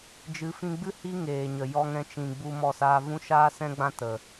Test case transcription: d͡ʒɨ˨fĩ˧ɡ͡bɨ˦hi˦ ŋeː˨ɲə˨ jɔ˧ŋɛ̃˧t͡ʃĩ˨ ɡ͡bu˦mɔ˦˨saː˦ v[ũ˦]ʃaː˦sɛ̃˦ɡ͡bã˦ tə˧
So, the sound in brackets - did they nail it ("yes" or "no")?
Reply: yes